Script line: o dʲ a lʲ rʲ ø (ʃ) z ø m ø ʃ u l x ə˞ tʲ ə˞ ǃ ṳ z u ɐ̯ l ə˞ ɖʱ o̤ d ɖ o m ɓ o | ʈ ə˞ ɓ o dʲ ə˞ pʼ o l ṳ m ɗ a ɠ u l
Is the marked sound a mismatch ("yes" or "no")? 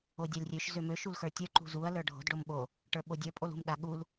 no